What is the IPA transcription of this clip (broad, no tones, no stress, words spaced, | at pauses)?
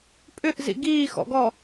pʼʏʔzḭ ɡiːxɔ̰ɡɔ